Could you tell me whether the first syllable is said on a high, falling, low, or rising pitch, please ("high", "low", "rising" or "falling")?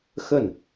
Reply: falling